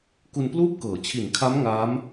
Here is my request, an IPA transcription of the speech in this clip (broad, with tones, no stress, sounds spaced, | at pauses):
k u˧ n p l uː˥˩ p̚ k ɤː˩˦ t͡ɕʰ i˨˩ n kʰ a˦˥ m ŋ aː˦˥ m